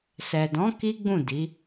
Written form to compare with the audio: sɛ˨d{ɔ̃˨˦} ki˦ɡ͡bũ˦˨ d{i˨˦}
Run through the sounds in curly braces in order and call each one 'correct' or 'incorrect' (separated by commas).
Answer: correct, correct